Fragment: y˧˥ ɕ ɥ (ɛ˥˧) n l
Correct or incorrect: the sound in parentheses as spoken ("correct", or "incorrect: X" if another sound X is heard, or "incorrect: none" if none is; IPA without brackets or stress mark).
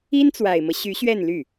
correct